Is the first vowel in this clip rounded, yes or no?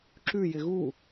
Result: yes